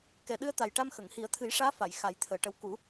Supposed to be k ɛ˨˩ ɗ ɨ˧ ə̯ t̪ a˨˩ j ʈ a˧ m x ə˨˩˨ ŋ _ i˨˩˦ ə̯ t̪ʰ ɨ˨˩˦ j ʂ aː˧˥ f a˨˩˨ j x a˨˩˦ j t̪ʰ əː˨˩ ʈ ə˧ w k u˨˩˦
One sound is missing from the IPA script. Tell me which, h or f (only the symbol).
h